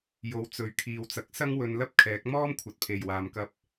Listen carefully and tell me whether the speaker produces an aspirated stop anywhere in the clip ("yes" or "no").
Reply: yes